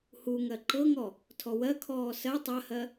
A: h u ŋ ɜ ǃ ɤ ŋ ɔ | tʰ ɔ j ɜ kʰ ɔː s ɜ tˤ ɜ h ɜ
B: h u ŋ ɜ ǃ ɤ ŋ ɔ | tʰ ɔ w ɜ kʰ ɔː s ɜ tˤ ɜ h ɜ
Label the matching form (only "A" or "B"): B